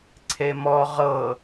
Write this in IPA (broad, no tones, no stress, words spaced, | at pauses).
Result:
ǀʰemɔ ʁɤ